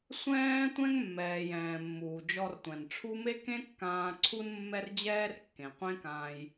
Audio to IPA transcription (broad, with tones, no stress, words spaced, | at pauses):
sʷɛ̃ː˥ tʷɛ̃˥ŋmːɛː˩j ɛ̃ː˩mːuː˩ d͡ʒɔ˧rtʷɛ̃˩nʈ͡ʂʰu˥ me˥kẽ˥kːãː˧ ǀʰu˥nmːɛ˥rd͡ʑɛː˥r kːẽ˩ qʷẽ˥kãː˧j